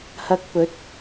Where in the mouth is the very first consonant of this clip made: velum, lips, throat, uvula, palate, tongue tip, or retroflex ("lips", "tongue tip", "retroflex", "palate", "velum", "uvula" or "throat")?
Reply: throat